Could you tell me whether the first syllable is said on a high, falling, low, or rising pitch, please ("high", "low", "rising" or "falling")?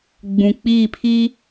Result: low